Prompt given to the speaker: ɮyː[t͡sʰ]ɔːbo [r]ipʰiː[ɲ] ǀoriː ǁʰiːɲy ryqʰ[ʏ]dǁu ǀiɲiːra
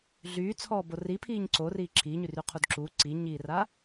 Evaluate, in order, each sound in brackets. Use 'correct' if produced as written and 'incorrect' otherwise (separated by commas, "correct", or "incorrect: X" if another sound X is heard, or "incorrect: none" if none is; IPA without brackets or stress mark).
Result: correct, correct, correct, incorrect: u